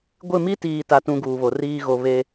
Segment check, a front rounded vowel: absent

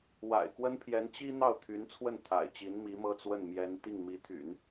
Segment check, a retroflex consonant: absent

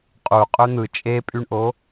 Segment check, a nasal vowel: absent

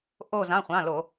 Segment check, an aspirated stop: absent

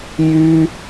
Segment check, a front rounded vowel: present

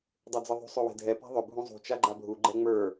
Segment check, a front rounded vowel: present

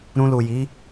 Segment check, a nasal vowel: present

